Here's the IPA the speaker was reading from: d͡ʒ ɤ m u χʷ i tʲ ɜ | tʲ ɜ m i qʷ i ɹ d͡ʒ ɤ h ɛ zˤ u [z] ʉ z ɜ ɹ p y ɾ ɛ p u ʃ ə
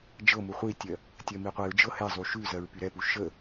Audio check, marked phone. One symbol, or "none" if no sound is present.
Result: ʃ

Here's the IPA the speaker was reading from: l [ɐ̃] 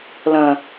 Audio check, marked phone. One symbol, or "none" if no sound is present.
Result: ɐ̃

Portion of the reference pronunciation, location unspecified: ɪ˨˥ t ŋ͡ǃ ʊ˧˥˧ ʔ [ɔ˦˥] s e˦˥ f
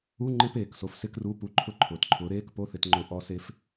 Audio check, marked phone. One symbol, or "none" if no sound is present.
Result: ɔ˦˥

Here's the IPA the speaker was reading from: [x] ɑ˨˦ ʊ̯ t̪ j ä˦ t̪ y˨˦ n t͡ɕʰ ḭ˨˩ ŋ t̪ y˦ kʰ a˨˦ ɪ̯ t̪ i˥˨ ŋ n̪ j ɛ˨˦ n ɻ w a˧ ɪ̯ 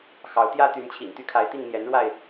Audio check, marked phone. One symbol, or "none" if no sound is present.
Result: x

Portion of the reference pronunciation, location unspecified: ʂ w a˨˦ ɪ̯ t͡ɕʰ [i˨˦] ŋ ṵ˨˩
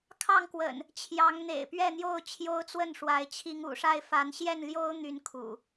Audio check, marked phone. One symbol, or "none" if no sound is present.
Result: i˨˦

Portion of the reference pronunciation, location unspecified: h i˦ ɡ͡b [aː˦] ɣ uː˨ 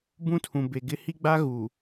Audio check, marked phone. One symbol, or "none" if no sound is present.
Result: a˦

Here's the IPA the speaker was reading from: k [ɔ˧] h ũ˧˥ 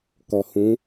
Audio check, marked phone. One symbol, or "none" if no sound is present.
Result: ɔ˧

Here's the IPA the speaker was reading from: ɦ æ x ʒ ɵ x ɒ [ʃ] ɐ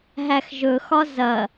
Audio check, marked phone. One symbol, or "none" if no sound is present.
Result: z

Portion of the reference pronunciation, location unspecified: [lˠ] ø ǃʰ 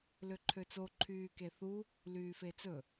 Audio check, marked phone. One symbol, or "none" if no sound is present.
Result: l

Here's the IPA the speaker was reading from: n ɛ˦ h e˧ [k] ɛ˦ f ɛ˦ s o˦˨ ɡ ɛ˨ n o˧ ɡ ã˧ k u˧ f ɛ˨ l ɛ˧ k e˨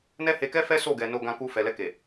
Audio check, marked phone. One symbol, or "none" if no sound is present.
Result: k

